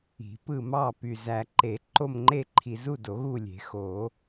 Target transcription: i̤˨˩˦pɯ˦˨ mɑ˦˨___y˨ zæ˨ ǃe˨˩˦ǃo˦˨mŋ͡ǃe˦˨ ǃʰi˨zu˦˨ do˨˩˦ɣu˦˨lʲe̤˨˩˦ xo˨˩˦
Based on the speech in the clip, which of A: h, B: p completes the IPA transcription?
B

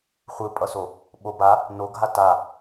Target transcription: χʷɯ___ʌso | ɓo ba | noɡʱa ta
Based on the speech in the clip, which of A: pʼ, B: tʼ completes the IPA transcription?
A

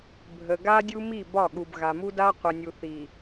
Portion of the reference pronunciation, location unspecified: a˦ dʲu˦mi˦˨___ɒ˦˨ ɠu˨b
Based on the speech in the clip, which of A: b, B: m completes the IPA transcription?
A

